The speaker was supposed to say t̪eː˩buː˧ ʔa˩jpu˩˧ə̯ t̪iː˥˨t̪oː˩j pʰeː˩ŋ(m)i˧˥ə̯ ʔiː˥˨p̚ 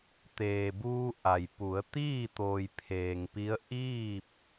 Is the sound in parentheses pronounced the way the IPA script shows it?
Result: no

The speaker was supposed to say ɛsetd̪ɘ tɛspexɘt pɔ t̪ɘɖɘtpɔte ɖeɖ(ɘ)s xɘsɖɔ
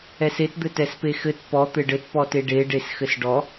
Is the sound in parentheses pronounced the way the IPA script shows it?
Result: no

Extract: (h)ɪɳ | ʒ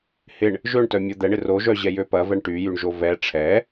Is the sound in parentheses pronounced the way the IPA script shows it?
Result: yes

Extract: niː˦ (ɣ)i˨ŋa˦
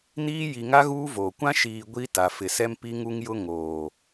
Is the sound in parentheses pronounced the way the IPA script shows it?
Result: no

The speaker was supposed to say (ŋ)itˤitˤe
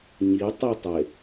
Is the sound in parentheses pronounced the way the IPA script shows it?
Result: no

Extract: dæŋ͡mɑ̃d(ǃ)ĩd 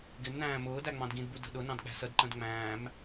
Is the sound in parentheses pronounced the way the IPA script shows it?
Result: no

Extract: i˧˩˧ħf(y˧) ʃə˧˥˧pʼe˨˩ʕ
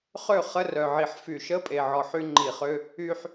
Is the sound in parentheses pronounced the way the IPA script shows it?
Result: no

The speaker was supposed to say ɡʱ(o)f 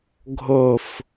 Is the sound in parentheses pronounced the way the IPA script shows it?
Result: yes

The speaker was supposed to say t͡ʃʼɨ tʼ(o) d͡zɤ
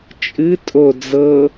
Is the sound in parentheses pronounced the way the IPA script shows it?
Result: yes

